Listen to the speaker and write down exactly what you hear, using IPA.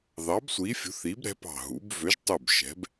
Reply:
ð ɑ˨˥ b sʷ iː˨˥ fʲ ṳ˨˥ θ iː˨˥ b ɾ ɛ̤˨˥ p ɑ̤˧˩ ɦ ṵ˨˥ b v ø˨˥ ʒ tˤ u˧˩ b ʃ ɛ̤˨˥ b

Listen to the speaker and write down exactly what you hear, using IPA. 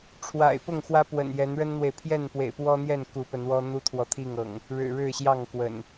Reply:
ʈ͡ʂʰ w a̰˨˩ ɪ̯ p ʊ˥˨ ŋ x w ä˦ p w ə̰˨˩ n j ɛ˨˦ n ɻ ə˦ n n̪ w e˨ ɪ̯ pʰ j ɛ˥˨ n p w ḛ˨˩ ɪ̯ p w ɔ˦ n̪ j ɛ˥˨ n k u˨˦ p ə˨˦ n w ɔ˦ n̪ u˦ t̪ʰ w ɔ˨ t̪ʰ i˥˨ ŋ ɤ̰˨˩ ŋ | ɻ ɻ̩˨˩ ɻ ɻ̩˥˨ ɕ j ɑ˥˨ ŋ k w ə̰˨˩ n

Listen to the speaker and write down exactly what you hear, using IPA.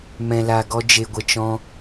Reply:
m ɛ̃˧ l a˧ ɡ ɔ˦ d͡ʒ e˧ ɡʷ ə˧ t͡ʃ ɔ̃˦

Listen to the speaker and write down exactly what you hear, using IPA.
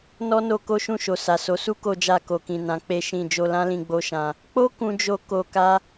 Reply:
n ɔ˦ n o˧ k o˦ ʃ ũ˦˨ ʃ o˨ s a˨ s o˨˦ s u˦ k o˧ d͡ʒ a˧ k o˨ k ĩ˨ n ã˨˦ k͡p e˦ ʃ ĩ˦˨ d͡ʒ o˧ l ã˦ l ĩ˧ ɡ͡b o˦ ʃ ã˧ | k͡p o˦ k ũ˦ d͡ʒ o˦ k o˧ k a˦

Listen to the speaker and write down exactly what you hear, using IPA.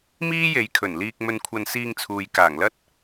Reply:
m iː˥ j e˨˧ j kʰ ɵ˨˩ n l iː˧ k̚ m ɵ˧ n kʷʰ ɐ˧ n s iː˧ ŋ t͡sʰ uː˨ j k aː˨˩ ŋ l ɐ˥ t̚

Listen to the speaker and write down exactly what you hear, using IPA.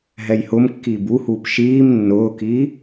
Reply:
ɦ ɛ j h ʊ m kː iː b u h uː p ʃ iː m nː ʊː k i

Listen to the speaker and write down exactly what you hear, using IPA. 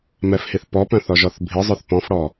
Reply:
m ɛ f h i θ p ɔ p œ̃ θ ɔ ʒ ɔ θ bʱ i zˤ œ θ p ɔ̃ f ɽ ɔ

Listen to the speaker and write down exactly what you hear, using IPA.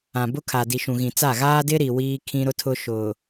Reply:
ã˨ b ʊ˦ kʰ a˨ d i˨ ʃ ũ˨ ɣ ĩ˨ t͡s a˦˨ ɣ aː˦ d ɪ˦ ɾ i˨ w iː˦ kʰ ĩ˦ ɾ ʊ˦ tʰ ʊ˦ ʃ ʊ˨

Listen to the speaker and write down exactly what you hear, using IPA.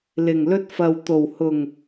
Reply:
l ɪ˨˩ ŋ l ɵ˥ t̚ f ɐ˨ w t̪ o˨˩ w h ʊ˨˩ ŋ

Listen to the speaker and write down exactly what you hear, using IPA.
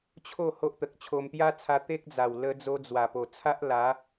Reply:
t͡ɕʰ o˥˧ h o˦ ʔ t̪ ə˨ k̚ t͡ɕʰ o˧ m t̪ j a˦ t͡sʰ a˧ t̪ e˦ k̚ d͡z a˨˩ w l ə˧ d͡z o˧ d͡z w a˨˩ p o˨˩ t͡sʰ a˦ ʔ l a˨˦

